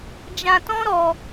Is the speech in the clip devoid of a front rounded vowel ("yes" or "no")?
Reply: yes